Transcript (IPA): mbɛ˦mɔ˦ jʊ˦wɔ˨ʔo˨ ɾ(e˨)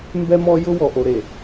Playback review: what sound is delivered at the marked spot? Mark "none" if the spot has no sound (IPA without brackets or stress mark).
e˨